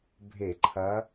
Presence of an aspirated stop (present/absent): present